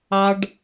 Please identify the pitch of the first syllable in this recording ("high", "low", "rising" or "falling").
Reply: high